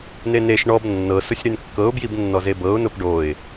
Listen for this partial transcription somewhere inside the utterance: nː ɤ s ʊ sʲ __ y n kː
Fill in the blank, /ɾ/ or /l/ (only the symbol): ɾ